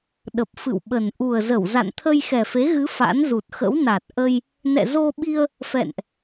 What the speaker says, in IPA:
ɗ ə˨˩ p̚ f ɨ̰˧˨ w ɓ ə˨˩ n ʔ u˨˩ ə̯ z ə˧˩ w z a̰˧˨ n t̪ʰ ə˧ j x ɛ˨˩ f e˨˦ ɣ ɨ˨˦ f a̰˧˥ n z u˨˩ t̚ x ə̰˧˥ w n a˨˩ t̚ ʔ ə˧ j | n ɛ̰˧˨ z o˧ ɓ i˧ ə̯ | f ɛ̰˧˨ n ʔ

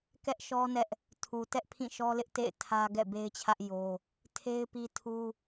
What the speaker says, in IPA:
k ɛ˦ ʔ ʃ ɔ˦ n ɛ˦ ʔ | tʰ u˨ t ɛ˦ ʔ pʰ ĩ˦˨ ʃ ɔ˦ l ɪ˦ ʔ t ḛ˦˨ ɪ̯ tʰ ä˦ ɡ ɛ̰˦˨ b e˦ ɪ̯ t͡ɕʰ ä˦ ʔ j o˦ | tʰ e˦ ɪ̯ p i˦ tʰ u˦

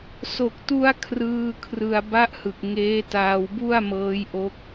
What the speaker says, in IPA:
s o˨˩ k̚ t u˧ a̯ kʰ r ɯː˧ kʰ r ɯ˧ a̯ b a˦˥ ʔ h ɯ˨˩ k̚ ŋ eː˦˥ t aː˧ w b u˥˩ a̯ m ɤː˦˥ j ʔ o˦˥ k̚

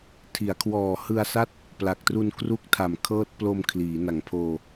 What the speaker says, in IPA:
tʰ i˩˦ a̯ kʰ w ɔː˨˩ h ɯ˧ a̯ s a˥˩ t̚ | p l a˨˩ k̚ t r u˧ n k r u˦˥ k̚ tʰ a˨˩ m kʰ ɤː˦˥ t̚ p l o˧ m kʰ l iː˩˦ n a˨˩ ŋ pʰ oː˧

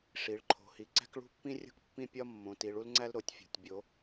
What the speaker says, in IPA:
ʂ i˩˧ ɭ ǃʰ o̤˩˧ h i˩˧ ǀ æ̤˥ k ɭ ṳ˥ pː ĩ˥ rʲ o̤˥ k pː ĩ˥ pʲ ɒ˥ mː õ˩˧ t i˩˧ ɭ u˥ l ŋ͡ǀ æ˥ l ɾ o˩˧ tʲ fʲ o̤˩˧ tʲ bʲ o˩˧

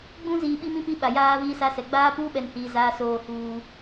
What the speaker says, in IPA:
ɡ͡b ũ˦ z iː˨ ɓ i˦ m ĩ˦ p i˦ ɓ a˨ j aː˦ v iː˦ s a˦ s ɛ˨ ɡ͡b aː˦ p uː˦ ɓ ɛ˨ n h iː˨ z aː˦ s oː˦ h uː˦

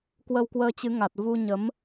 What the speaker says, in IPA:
k w ə˧ w k w əː˧ t͡ɕ ɨ˨˦ ŋ a˨˩ t̚ v u˧ ɲ ə˨˦ m

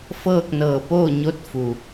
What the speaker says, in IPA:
f ɤː˥˨ k̚ n ɤː˧˩ p oː˥˨ ɲ o˧˥ t̚ f u˩

